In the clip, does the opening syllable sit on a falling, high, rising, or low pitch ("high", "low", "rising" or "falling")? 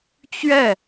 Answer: falling